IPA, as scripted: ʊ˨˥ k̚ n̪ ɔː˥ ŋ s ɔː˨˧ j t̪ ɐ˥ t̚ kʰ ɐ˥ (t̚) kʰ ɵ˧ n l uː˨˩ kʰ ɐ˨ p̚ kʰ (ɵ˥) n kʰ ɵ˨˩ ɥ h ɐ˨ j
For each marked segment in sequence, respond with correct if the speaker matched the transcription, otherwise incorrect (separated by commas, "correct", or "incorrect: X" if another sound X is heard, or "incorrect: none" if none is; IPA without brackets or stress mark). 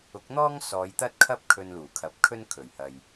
incorrect: p̚, correct